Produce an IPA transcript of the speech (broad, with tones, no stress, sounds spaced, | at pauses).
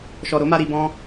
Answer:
ʃ ɔ˨ ɾ o˨˦ m a˧ ɾ i˧ b ɔ̃˦